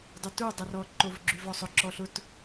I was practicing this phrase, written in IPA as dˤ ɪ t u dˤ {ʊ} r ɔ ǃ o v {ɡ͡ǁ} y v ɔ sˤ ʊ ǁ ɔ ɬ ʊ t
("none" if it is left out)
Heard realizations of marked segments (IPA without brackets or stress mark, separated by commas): ʊ, ɡ͡ǁ